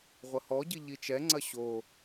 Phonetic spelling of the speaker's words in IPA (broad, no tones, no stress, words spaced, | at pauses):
ʁʷɐhɔɟi ʎit͡ʃɛŋ͡ǀɐ ɕo